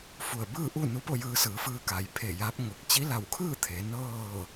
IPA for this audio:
f u˧˩ ə̯ b ɯː˥˨ ʔ u˥˨ n u˧˥ p o˥˨ j ɯː˧ s ɯː˩˧ f ɯː˧ k a˩ j pʰ e˧˩ j aː˧˥ p̚ ŋ o˧˩ k̚ t͡ɕ i˧˥ l a˧˩ w kʰ ɯː˥˨ t̪ʰ e˩˧ n ɤː˥˨

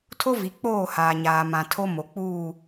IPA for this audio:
tʰ o˦ v i˨ k͡p oː˦˨ h aː˨ ɲ aː˨ m ã˨ tʰ o˦ m o˨ k͡p uː˦˨

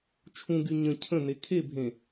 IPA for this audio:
t͡ʃʰ ũ ɡ y ɲ ə̃ cʰ ə̃ n e kʰ e bʱ ẽ

